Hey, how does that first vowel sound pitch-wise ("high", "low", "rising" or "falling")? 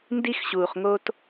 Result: high